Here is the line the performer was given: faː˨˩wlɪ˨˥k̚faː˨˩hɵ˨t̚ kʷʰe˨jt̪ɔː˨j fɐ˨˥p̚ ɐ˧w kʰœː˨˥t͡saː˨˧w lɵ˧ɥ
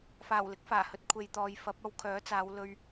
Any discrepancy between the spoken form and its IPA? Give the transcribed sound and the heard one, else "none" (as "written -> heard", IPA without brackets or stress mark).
none